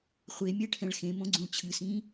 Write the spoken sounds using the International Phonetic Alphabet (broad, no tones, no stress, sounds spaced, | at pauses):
χʷ e mʲ ɛ ʈʰ ɛ̃ ɭ x ẽ m õ ɡ͡ǀ ũ ɭ t͡ɕʰ ɨ s ĩː